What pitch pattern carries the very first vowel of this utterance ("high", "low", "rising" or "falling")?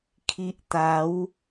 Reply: high